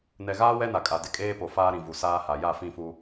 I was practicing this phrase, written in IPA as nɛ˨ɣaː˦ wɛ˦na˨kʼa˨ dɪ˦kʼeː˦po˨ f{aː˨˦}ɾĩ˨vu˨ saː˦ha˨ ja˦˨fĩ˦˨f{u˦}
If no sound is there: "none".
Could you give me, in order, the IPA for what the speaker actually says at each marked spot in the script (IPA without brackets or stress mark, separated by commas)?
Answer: aː˦, u˦